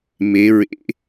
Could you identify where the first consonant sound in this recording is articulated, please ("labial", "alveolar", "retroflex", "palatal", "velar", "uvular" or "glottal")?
labial